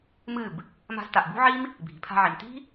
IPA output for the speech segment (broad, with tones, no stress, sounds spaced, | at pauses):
m ɨ˦˨ b | m a̤˧ z t a˨ ʔ b ṳ˦ ʕ i˦ m | bʱ i̤˨ pʰ a̤˧ ʕ i˨ m t i̤˦